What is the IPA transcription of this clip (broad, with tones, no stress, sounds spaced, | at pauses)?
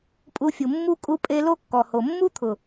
pʼ u˧ fʲ u˨ mː u˦ kʼ u˧ pʼ e˧ l o˦ kː ɔ˨ h o˨ mː u˦ t̪ʰ ʊ˨